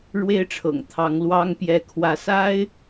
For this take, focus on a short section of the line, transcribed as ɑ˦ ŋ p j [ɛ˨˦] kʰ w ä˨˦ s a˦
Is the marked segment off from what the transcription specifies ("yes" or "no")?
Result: no